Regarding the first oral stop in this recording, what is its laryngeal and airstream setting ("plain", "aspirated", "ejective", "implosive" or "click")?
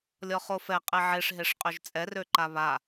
ejective